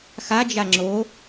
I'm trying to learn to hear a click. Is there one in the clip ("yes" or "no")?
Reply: yes